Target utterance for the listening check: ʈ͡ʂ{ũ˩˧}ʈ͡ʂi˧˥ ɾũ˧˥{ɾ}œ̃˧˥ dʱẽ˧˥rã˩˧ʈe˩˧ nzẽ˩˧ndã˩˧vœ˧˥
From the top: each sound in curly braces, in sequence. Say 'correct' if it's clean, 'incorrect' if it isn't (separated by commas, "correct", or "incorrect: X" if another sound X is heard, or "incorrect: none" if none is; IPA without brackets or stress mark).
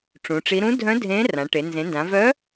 correct, incorrect: dʱ